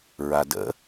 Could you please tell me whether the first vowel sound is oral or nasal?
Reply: oral